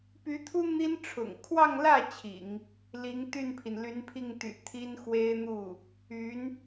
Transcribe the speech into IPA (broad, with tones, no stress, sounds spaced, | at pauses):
p y˧˥ t̪ʰ u˥ n̪ i˥ n ʈ͡ʂʰ ʊ̰˨˩ ŋ kʰ w ɑ˥˧ ŋ l ä˥˩ t͡ɕʰ ḭ˨˩˦ ŋ | l i˧˥ ŋ t̪ y˥˩ n pʰ i˩ n l y˧˥ n pʰ i˥˩ ŋ t̪ y̰˨˩ t̪ʰ i˥ n x w e˥ ɪ̯ n̪ u˥˩ | y˧˥ n